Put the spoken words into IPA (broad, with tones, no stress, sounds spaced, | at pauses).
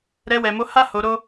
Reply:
ɾ ɛ˧ w ɛ˨ m o˧ h a˦ h o˧ ɾ o˦